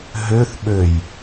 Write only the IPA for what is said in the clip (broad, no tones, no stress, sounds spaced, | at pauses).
ɦ ø θ ɓ ø j